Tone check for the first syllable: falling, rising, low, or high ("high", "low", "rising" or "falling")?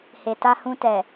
low